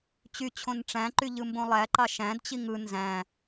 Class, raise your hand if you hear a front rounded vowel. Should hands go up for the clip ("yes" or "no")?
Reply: yes